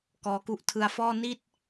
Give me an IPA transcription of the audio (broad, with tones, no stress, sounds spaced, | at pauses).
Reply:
k ɔː˦˥ k u˥˩ ʔ tʰ ɯ˧ a̯ f ɔː˥˩ n i˥˩ t̚